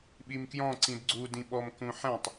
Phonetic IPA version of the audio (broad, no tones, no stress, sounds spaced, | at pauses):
ɓ i m k j ɔ̃ ǀ ĩ d ɡ͡ǀ u d ĩ ɓ ɔ m k ũ ħ ɛ̃ tˤ